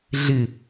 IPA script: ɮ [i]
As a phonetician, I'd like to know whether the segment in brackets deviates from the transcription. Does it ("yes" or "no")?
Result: yes